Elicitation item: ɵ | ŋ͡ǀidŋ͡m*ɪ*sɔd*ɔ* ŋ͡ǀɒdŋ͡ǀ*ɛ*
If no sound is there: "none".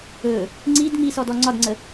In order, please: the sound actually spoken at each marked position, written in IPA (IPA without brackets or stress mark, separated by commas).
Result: i, ɔ, ə